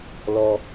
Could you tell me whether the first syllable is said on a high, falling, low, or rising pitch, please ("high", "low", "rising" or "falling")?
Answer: high